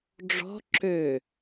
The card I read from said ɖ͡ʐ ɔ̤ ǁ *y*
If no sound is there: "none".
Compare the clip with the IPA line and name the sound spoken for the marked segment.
ø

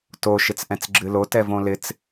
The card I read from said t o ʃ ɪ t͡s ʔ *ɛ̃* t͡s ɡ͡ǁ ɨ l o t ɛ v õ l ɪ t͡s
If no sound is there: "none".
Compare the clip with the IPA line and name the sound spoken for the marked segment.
ɛ̃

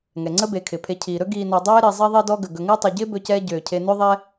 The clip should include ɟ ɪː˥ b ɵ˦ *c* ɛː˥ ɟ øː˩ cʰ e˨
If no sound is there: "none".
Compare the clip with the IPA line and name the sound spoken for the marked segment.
c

